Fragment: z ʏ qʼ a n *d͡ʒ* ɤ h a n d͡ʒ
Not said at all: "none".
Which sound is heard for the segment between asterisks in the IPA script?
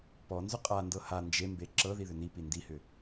d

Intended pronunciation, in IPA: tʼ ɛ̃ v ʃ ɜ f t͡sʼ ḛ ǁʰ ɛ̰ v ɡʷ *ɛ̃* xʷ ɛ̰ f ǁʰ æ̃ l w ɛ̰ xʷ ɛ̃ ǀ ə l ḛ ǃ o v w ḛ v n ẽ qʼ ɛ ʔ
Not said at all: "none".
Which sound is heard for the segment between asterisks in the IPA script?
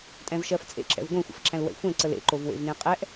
ẽ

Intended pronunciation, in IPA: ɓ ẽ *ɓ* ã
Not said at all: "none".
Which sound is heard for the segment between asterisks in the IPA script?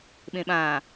ɓ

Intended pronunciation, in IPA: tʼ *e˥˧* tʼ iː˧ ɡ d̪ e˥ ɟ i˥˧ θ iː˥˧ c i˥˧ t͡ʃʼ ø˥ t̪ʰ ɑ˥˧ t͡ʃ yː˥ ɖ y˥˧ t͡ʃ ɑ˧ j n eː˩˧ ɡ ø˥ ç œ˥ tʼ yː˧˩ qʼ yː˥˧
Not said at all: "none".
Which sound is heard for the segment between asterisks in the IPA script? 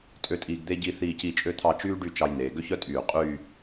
ø˥˧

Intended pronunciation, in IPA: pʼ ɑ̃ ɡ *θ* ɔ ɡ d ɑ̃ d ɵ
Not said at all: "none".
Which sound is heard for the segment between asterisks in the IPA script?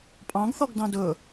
θ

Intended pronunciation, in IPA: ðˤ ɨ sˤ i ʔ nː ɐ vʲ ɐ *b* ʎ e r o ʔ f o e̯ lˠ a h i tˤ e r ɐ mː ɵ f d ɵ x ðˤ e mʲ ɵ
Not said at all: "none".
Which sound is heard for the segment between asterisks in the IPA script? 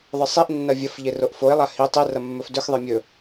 f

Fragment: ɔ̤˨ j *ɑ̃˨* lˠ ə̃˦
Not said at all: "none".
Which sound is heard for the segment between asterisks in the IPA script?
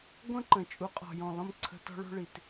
ɔ̃˨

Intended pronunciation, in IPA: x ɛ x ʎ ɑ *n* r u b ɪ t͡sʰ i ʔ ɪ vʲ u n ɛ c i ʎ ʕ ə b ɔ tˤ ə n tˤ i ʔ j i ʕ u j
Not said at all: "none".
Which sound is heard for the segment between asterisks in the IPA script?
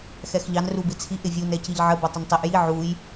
n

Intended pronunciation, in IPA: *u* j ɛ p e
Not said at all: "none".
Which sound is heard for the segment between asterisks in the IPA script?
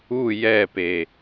u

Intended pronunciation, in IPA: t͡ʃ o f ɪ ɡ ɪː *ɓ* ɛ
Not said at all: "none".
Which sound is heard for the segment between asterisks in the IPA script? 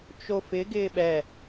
ɓ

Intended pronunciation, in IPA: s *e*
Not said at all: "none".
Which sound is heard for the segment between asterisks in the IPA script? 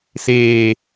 eː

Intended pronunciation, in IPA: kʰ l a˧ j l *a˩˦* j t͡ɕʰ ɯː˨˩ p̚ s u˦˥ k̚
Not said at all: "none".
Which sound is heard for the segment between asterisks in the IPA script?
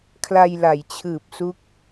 a˩˦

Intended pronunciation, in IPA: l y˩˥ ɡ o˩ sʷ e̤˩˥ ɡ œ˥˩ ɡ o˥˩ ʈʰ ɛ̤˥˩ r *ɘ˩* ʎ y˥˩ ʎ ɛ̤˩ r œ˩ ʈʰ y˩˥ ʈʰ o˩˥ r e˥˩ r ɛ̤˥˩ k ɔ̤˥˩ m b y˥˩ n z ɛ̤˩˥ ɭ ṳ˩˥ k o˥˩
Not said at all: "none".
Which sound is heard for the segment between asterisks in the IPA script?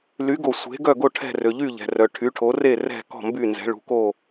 ø˩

